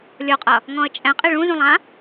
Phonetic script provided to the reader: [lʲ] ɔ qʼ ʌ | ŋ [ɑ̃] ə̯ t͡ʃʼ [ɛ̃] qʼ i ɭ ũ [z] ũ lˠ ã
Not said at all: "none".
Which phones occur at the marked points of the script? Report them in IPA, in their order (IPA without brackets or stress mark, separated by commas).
lʲ, ɔ̃, ɛ̃, z